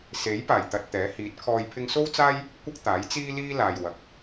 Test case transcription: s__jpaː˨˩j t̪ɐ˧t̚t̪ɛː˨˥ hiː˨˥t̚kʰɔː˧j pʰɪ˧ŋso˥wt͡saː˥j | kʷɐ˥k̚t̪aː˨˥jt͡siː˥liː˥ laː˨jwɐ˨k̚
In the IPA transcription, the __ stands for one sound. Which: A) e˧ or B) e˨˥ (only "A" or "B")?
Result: B